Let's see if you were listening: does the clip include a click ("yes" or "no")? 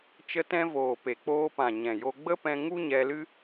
no